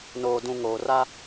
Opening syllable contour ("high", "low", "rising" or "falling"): low